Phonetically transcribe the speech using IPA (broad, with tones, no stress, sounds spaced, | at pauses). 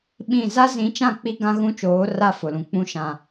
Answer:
ɓ ĩ˦˨ z a˦ z ĩ˨˦ t͡ʃ ã˦˨ k͡p i˦ ɡ ã˦ ɣ ũ˦ t͡ʃ oː˨˦ r a˦˨ f ʊ˨ l ũ˨ k͡p ũ˦ ʃ ã˨